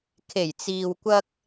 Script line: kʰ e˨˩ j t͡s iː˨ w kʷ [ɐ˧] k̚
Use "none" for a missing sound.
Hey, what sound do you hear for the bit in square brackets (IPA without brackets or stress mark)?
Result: ɐ˧